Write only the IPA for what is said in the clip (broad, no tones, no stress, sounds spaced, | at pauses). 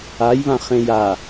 a j β ã χ ẽ j a